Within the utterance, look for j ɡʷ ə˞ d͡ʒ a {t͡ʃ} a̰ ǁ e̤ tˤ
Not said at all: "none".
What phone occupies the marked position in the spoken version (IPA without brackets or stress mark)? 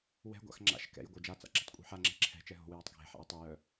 t͡s